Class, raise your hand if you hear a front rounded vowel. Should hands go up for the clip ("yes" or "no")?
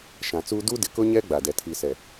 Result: no